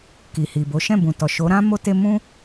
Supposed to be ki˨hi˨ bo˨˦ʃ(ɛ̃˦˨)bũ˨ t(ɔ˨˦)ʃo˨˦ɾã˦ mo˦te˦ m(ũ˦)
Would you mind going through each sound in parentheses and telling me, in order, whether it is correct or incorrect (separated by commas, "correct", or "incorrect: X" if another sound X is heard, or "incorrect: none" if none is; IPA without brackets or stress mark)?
correct, incorrect: ɔ˨, correct